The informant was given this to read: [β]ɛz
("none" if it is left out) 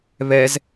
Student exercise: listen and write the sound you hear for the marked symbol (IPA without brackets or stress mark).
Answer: β